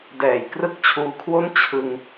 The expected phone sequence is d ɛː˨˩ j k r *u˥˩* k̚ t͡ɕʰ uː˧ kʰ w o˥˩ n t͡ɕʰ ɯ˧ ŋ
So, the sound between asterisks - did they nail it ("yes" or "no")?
no